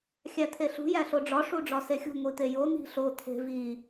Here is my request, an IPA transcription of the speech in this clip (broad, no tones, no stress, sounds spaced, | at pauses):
xʲ æ t̪ʰ e ɬ ṳ j æ ɬ o ɖ͡ʐ ɒ ʂ u ɖ͡ʐ ɒ s e xʲ ṳ ŋʷ i t̪ e j o n̪ i̤ ɬ o t̪ʰ e̤ v i